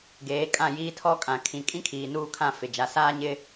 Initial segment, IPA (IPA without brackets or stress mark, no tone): ɡ